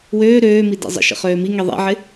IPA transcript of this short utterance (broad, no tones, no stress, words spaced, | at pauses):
wøː ɾøːmi dḛzˤə̰ʃə̰ χøːmiŋi ðˤḛʕɪ